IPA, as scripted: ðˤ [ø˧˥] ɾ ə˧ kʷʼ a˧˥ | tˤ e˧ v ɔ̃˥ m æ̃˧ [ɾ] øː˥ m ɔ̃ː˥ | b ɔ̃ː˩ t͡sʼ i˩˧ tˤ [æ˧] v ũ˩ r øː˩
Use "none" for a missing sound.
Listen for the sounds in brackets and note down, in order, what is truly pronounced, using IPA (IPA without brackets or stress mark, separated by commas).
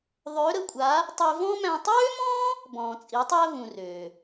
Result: ø˧˥, tˤ, æ˧